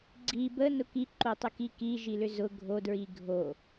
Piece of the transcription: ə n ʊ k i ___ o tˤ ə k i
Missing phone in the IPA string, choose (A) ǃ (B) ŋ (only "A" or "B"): A